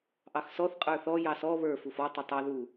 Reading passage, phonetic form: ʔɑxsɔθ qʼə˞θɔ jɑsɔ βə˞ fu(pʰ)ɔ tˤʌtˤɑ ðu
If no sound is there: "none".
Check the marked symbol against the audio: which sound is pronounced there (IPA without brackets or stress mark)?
f